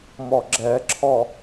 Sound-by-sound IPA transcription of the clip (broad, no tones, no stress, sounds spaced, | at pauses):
m ɔ ɡ͡ǁ ɛ ǁʰ ɔ